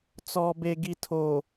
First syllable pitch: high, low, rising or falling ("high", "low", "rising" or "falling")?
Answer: low